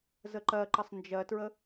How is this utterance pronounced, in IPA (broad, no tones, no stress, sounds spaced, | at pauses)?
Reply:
z ə ǃ ɜ ǃ ə sˤ n d͡ʒ ɜ t ɹ ə